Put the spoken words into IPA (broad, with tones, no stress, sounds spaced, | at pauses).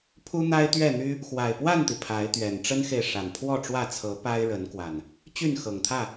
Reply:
pʰ u˦ n̪ a˦ ɪ̯ t̪ ɥ ɛ˥˨ n̪ y˦ | x w a˨˩ ɪ̯ p w a˥˨ n t̪ i˩ pʰ a˨˦ ɪ̯ t̪ ɥ ɛ˨˩ n ʈ͡ʂ ə˦ n x e˨ ɪ̯ ʂ a˨˩ n pʰ w ɔ˥˨ ʈ͡ʂ w ä˥˨ t͡sʰ ɤ˨˦ p a˦ ɪ̯ ɻ ə˨˦ n k w a˨˩ n | t͡ɕ y˥˨ n x ɤ˨˩ ŋ t̪ʰ ä˥˨